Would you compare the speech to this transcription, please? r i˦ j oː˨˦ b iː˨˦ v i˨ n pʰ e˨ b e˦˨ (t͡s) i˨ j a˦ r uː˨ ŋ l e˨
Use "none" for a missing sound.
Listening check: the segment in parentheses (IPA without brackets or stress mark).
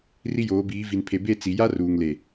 t͡s